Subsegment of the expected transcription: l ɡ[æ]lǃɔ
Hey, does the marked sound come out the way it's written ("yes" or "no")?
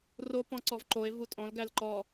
yes